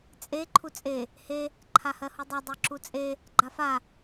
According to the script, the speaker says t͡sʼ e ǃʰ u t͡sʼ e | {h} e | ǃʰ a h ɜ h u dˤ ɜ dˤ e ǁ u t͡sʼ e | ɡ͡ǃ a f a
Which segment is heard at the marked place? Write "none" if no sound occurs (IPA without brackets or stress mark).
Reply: h